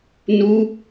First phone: n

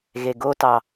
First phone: ɣ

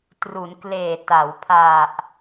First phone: t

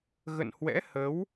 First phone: ɣ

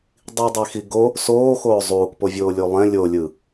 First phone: dˤ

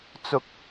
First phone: t͡s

